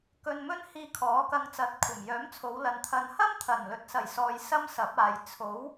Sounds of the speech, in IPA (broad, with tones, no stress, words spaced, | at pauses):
kɵ˧nmɵ˥nhiː˧ kʰɔː˨˥kɐ˧ŋ t͡sɐ˨˥t̚kʷʰɐ˨˩mjœː˨˥mt͡sʰo˨˧w lɐ˨nt̪ʰɐ˨nhɐ˥m t̪ʰɐ˨˩nlɵ˨t̚ sɐ˨˩jsɔː˨j sɐ˥msɐ˨˥p̚aː˨j t͡sʰo˨˥w